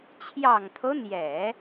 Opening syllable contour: low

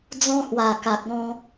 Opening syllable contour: high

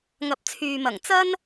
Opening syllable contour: rising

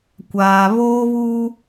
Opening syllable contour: low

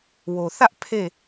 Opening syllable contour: low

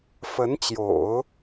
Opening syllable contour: rising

